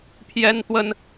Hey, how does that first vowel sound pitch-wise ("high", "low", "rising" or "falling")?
high